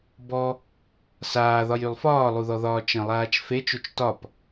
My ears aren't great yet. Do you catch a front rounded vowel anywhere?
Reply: yes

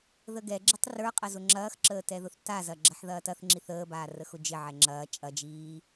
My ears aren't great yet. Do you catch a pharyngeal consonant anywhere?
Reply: yes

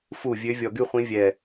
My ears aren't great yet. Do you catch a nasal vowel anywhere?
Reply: yes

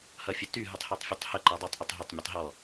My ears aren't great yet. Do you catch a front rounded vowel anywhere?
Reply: yes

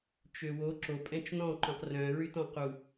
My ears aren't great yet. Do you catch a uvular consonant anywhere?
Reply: yes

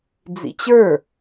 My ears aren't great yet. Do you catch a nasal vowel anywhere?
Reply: no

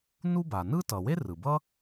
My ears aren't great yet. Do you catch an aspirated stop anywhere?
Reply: no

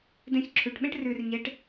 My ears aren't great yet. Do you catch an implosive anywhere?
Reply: yes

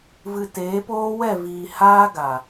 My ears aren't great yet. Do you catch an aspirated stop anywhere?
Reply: no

